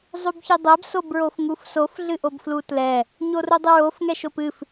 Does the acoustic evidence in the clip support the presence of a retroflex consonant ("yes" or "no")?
no